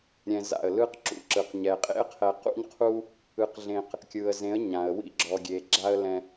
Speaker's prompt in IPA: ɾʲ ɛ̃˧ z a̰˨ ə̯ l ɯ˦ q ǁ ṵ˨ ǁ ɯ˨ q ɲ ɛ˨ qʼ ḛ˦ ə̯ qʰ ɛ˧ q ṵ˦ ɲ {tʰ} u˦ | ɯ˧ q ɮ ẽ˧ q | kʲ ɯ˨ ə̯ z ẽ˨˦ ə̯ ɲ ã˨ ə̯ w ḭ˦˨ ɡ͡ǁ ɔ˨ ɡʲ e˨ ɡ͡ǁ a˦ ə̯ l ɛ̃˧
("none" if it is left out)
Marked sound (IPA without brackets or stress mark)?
qʰ